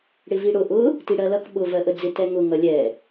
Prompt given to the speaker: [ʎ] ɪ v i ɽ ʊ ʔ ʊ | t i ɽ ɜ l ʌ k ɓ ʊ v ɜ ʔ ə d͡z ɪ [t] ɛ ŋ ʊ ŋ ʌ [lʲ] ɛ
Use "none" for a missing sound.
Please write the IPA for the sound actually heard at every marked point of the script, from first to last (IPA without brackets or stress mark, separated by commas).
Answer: ɽ, t, lʲ